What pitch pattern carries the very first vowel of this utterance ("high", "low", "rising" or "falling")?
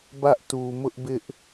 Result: high